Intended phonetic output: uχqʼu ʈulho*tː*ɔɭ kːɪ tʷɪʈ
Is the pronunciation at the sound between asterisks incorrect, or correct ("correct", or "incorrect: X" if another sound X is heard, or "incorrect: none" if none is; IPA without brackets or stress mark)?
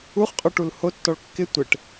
correct